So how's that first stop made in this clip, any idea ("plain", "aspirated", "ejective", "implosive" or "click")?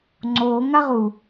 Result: click